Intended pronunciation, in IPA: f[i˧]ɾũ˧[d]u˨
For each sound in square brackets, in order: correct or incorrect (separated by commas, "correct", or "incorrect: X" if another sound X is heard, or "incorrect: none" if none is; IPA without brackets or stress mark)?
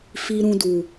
correct, correct